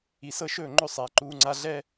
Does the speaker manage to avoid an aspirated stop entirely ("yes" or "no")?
yes